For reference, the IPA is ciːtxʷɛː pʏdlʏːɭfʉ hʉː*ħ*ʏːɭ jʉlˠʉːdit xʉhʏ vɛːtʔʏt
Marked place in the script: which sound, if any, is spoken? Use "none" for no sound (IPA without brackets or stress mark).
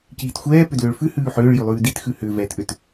ħ